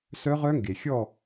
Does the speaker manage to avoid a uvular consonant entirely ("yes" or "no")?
no